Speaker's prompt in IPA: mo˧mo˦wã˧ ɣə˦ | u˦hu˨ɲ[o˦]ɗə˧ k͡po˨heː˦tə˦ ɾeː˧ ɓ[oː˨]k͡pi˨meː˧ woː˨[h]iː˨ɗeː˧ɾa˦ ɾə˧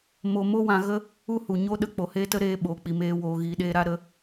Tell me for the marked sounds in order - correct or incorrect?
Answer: correct, correct, incorrect

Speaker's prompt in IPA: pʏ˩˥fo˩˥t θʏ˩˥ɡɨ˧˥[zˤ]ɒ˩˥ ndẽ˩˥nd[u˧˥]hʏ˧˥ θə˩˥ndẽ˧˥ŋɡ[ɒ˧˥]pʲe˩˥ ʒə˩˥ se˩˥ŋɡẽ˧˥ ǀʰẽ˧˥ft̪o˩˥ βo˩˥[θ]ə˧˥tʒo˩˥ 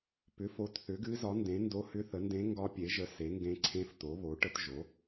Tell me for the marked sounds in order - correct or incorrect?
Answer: incorrect, incorrect, correct, incorrect

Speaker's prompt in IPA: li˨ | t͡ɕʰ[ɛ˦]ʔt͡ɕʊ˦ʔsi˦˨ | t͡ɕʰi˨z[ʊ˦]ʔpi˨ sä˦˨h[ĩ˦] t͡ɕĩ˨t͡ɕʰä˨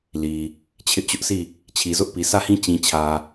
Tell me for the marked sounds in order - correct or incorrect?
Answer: incorrect, correct, correct

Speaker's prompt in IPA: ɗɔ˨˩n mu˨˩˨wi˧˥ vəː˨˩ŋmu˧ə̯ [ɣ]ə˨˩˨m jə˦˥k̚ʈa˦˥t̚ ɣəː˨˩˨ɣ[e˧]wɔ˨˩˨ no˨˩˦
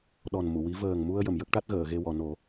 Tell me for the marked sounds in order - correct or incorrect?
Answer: incorrect, correct

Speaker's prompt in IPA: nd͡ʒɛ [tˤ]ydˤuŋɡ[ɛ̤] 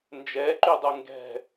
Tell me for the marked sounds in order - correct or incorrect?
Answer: incorrect, correct

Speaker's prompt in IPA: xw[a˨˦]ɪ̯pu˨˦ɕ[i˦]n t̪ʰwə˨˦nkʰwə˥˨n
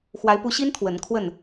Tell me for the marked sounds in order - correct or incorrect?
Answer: correct, correct

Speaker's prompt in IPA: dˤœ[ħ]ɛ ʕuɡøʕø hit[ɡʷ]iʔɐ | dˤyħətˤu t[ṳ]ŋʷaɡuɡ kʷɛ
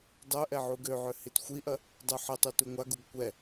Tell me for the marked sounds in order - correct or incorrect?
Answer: incorrect, incorrect, incorrect

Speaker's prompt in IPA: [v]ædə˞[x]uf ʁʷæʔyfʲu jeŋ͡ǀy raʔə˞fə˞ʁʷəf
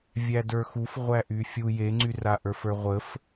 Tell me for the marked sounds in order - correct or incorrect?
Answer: incorrect, correct

